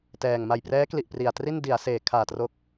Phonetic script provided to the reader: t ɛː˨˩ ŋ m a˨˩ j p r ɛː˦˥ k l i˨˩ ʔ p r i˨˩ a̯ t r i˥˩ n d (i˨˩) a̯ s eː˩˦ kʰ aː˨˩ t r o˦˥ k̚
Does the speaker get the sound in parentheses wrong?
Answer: yes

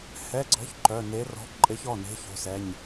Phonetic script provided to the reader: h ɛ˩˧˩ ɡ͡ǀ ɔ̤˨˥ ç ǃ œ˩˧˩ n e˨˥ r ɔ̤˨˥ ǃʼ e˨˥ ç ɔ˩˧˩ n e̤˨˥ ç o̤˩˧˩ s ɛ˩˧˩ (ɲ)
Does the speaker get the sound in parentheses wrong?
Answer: no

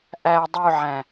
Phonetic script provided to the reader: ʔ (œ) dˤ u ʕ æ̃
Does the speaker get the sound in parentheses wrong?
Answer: yes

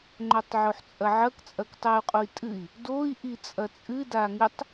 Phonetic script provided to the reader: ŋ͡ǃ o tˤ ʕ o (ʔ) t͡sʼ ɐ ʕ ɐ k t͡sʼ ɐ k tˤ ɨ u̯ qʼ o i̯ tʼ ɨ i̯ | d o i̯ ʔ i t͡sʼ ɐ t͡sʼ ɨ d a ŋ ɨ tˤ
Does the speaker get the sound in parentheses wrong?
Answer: yes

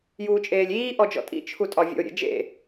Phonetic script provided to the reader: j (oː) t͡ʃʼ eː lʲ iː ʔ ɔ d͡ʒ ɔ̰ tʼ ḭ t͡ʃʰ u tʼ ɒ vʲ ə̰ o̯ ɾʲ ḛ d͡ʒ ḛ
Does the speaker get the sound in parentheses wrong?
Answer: yes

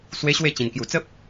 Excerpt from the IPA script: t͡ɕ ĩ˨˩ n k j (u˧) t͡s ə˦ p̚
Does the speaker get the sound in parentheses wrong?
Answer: yes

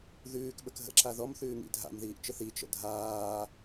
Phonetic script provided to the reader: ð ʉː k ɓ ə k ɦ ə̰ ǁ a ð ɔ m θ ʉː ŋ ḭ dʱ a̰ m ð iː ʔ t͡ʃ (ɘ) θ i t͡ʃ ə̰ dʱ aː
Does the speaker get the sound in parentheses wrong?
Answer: no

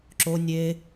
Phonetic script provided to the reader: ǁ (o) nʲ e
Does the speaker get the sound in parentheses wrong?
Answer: no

